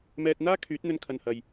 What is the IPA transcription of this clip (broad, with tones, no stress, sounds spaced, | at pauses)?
m ɛː˧ t̚ n̪ aː˥ kʰ yː˨˥ t̚ n̪ ɵ˧ n kʰ ɐ˧ n h ɐ˧ j